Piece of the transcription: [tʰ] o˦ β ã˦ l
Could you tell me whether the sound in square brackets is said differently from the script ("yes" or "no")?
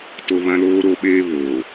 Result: yes